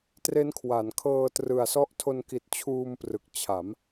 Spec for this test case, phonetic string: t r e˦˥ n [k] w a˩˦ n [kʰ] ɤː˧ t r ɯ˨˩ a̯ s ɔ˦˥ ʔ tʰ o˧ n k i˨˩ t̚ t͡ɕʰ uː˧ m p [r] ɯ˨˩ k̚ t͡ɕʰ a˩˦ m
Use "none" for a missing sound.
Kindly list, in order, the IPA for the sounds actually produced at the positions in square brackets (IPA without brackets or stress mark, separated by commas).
kʰ, kʰ, r